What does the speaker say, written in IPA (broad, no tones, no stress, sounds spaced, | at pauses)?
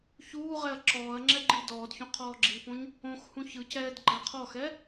ç uː ʁ ɛ ɐ̯ ǁ ɔː ɐ̯ ŋ͡ǁ ɛ ɡ͡ǃ i d ɔː d ç õ qʰ ɔː ɡ͡ǁ i p õ ɲ | õ x h ũ ç ɯ c ɛː d ɡ͡ǃ a qʰ ɔ x ɛ